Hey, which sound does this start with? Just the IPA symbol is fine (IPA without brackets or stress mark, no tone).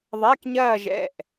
ðˤ